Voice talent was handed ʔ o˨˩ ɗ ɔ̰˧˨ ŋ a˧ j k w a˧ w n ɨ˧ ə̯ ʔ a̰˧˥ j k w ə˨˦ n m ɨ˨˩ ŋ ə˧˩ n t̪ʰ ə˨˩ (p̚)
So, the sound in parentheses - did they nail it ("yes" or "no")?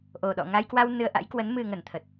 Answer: no